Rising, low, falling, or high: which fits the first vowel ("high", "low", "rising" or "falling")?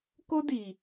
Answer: high